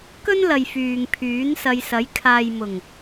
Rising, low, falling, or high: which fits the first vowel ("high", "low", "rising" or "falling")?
high